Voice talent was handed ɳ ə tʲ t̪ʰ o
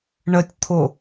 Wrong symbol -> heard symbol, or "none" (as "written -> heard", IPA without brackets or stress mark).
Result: none